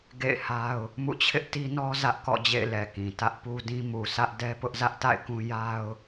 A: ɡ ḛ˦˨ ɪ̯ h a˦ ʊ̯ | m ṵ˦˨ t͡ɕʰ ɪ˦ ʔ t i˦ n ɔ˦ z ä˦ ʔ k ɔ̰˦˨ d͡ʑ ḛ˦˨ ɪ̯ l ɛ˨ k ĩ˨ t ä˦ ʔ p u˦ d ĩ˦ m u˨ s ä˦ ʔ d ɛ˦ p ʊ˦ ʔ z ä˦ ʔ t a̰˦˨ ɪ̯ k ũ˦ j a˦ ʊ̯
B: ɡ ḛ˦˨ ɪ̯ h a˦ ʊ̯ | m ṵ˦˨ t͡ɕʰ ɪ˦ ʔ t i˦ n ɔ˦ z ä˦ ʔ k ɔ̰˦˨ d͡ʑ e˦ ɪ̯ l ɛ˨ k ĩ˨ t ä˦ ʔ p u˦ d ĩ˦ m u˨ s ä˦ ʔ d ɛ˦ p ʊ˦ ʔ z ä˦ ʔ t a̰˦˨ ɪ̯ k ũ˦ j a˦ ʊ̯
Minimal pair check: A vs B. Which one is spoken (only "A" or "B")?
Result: A